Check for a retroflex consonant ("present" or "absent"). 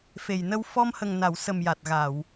absent